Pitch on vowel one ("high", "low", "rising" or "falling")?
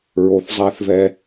low